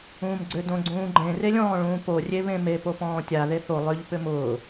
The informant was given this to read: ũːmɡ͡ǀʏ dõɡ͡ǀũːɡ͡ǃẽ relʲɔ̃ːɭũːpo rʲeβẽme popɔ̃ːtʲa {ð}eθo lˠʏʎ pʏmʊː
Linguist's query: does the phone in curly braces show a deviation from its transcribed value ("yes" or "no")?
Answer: no